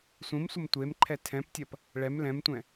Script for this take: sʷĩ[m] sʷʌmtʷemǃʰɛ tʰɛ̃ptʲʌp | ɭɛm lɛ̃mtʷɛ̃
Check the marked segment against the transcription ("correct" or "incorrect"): correct